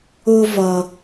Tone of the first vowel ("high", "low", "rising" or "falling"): high